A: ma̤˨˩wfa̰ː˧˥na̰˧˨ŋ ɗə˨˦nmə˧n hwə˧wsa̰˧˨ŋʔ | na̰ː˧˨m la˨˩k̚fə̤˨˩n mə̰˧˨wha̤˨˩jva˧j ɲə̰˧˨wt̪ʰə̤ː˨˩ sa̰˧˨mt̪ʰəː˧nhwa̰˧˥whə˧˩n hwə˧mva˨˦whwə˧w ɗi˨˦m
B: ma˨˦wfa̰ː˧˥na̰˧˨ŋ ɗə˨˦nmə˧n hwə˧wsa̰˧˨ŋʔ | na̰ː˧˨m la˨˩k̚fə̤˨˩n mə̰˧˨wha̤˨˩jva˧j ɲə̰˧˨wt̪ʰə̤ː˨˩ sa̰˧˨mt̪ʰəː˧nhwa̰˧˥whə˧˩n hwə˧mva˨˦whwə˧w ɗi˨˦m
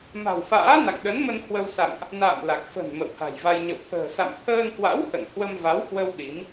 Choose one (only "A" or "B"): A